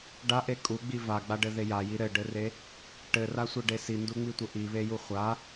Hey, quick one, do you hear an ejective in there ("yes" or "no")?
yes